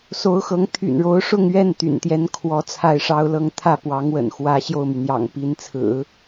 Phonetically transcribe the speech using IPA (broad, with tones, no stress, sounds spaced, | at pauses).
s o˧˥ ʊ̯ x ɤ˧˥ ŋ t̪ʰ y̰˨˩ n ɻ o˧˥ ʊ̯ ʂ ʊ˥˧ ŋ ɥ ɛ˥˩ n t̪ y̰˨˩ n t̪ j ɛ˥ n kʰ w ɔ˧˥ t͡sʰ a˥˩ ɪ̯ ʂ ɑ˥ ʊ̯ l ɤ˥˧ ŋ t̪ʰ ä˥˩ p w ɑ˧˥ ŋ w ə̰˨˩ n x w ä˧˥ ɕ j o˥˩ ʊ̯ m y˩ n̪ j ɑ̰˨˩ ŋ p i˧˥ n t͡sʰ ɹ̩˨˩˦